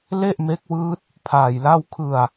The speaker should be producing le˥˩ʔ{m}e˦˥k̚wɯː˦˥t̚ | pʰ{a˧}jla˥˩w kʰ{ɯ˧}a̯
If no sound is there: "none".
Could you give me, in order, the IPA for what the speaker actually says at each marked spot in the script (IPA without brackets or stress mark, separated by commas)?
m, aː˧, ɯ˧